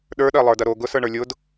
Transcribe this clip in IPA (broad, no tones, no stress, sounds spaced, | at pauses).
ɗ ə˞ ɗ ɜ lˠ ə˞ d ɐ ɾ o ɡ ʊ s ə˞ ɳ ə˞ lʲ ʊ d